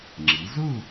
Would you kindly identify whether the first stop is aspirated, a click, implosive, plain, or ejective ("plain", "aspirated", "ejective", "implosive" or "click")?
click